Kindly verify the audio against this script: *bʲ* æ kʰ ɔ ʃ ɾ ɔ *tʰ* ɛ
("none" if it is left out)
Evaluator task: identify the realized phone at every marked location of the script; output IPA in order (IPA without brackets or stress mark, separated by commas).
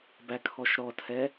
b, tʰ